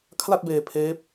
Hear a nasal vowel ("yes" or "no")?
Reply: no